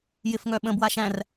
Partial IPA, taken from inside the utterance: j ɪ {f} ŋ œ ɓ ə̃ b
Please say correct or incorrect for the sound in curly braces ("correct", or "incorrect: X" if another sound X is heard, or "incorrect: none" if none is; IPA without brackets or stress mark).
correct